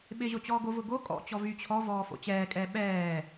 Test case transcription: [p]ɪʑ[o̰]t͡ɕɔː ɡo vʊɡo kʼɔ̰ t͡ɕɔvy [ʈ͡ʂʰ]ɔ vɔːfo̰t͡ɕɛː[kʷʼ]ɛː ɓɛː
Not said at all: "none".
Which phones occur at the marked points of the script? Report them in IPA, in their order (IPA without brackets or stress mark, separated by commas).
ɓ, o, t͡ɕʰ, kʼ